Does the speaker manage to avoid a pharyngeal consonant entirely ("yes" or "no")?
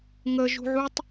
no